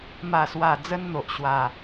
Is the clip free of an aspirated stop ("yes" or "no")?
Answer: yes